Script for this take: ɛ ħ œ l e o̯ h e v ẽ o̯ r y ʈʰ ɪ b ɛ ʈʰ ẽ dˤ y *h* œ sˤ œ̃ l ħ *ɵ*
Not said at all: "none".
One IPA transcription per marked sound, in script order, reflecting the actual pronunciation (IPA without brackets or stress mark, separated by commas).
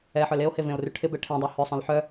h, œ